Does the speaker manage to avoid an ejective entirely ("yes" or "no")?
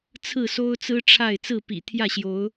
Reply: yes